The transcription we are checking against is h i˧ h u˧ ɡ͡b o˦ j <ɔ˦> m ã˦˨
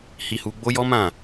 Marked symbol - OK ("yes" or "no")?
yes